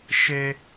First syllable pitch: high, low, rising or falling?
high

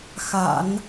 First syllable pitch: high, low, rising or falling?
low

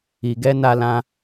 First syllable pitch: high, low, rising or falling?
low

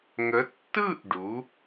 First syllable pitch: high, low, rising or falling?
rising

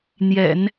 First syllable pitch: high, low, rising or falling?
low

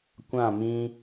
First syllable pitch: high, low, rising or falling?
falling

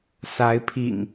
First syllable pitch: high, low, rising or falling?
rising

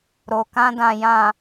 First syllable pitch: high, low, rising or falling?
low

